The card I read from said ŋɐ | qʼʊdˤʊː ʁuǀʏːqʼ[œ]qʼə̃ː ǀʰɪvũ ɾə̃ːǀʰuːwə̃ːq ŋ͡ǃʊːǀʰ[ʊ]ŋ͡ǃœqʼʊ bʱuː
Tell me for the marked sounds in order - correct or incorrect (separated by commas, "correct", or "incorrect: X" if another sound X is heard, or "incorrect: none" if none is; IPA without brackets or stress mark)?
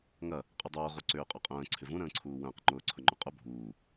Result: correct, correct